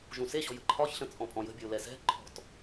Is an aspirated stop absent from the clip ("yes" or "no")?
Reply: no